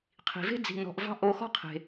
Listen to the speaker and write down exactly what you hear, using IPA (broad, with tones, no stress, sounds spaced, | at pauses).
qʰ i̤˨ v e̤˦ d͡z i̤˧ n ɔ̤˧ ʔ v ɑ̤˦ ʔ o˧ x ɔ̤˦ qʰ e̤˧